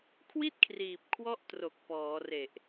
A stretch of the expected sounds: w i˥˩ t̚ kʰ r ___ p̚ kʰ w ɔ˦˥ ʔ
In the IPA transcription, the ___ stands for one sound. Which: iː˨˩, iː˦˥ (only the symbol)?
iː˨˩